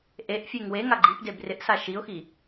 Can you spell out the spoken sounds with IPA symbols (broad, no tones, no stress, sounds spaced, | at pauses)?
ʔ e ʔ fʲ e ŋ w e ŋ a ɡ͡ǃ i p d e b r ɪ ʔ s a ʃ i ʊ̯ x i